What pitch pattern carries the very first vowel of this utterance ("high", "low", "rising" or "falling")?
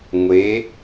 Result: rising